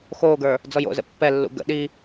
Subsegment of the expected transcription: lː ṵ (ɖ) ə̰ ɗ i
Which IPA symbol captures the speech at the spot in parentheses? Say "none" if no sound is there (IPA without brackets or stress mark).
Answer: ɡ